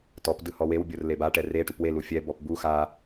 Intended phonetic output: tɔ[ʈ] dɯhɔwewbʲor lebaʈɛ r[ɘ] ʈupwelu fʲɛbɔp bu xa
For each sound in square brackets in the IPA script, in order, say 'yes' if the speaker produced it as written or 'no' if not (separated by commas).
no, no